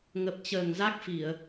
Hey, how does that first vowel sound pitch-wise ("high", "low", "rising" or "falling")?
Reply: low